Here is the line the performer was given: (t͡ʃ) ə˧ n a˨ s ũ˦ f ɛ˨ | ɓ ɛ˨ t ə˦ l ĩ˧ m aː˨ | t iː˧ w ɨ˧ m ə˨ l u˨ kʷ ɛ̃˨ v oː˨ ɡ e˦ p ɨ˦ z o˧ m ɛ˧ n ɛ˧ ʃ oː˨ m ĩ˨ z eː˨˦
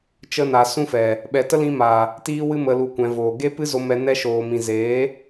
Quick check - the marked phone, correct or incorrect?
correct